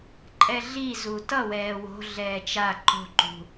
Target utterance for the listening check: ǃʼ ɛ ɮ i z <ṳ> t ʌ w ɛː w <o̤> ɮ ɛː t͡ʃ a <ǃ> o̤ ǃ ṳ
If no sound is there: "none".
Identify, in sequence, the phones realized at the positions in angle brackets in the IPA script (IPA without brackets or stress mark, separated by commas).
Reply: u, o̤, ǃ